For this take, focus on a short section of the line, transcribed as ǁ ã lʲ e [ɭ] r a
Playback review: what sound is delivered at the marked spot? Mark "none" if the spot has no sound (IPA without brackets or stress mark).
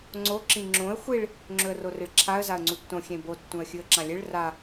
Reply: ɭ